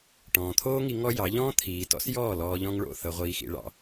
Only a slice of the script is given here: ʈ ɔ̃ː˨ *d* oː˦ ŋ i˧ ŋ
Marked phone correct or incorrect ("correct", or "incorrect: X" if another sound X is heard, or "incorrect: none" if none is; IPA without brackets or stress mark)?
incorrect: t̪ʰ